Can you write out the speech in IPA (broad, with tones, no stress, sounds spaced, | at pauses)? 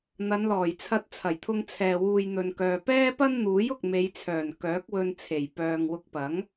n̪ ɐ˨˧ n l ɔː˨˩ j t͡sʰ ɐ˧ t̚ t͡sʰ ɐ˨˩ j t̪ʰ ʊ˧ ŋ t͡sʰ ɛː˨ w uː˨ j n̪ ɵ˨ n k œː˨ p ɛː˥ p ɐ˥ n n̪ uː˨˥ j ʊ˨ k̚ m e˨˧ j t͡sʰ œː˨˩ n k œː˨˥ k̚ w ɵ˧ n t͡sʰ e˨˩ j p œː˨ ŋ w ʊ˧ k̚ p ɐ˨˥ ŋ